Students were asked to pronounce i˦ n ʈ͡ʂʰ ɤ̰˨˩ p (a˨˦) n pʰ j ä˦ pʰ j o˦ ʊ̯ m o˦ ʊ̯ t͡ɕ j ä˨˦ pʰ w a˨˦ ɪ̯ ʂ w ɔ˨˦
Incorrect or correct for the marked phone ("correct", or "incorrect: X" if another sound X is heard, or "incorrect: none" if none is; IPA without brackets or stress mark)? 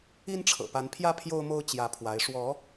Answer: correct